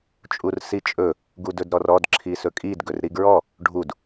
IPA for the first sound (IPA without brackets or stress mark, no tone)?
t͡ʃʼ